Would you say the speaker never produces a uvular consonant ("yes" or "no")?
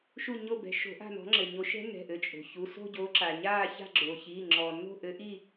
yes